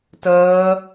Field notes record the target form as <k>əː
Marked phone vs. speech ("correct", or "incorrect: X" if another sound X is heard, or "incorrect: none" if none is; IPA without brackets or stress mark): incorrect: t